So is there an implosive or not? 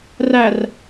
no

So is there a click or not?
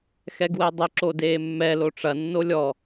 yes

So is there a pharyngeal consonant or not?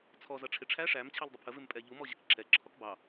no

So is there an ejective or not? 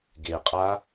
yes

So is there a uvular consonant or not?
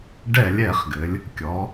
yes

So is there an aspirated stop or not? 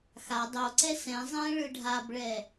no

